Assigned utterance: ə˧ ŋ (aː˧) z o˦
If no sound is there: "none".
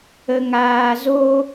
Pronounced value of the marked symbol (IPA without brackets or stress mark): aː˧